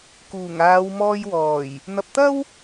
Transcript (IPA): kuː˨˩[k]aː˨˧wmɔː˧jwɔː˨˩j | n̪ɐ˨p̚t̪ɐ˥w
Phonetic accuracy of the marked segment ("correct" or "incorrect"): incorrect